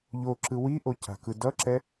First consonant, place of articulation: palatal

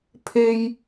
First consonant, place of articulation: labial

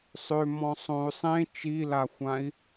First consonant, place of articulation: alveolar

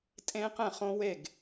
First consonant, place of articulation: alveolar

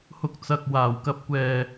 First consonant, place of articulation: glottal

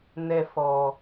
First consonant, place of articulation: alveolar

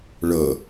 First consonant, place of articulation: retroflex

